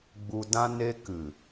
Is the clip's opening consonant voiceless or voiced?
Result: voiced